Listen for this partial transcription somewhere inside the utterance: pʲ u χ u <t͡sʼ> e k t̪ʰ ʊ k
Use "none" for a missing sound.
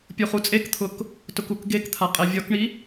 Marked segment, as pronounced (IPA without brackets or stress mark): t͡sʼ